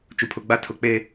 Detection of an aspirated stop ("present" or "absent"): present